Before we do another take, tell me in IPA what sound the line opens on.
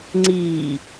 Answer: ŋ͡ǀ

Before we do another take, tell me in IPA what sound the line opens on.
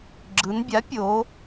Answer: ɡ͡ǁ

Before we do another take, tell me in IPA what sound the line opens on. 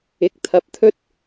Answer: ɪ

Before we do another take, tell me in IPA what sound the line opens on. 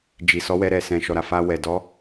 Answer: d͡ʒ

